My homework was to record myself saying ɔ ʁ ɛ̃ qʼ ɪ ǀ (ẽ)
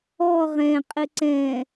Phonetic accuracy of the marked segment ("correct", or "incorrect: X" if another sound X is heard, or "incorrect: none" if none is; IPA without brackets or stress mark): incorrect: ɛ̃